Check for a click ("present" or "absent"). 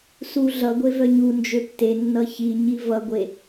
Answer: absent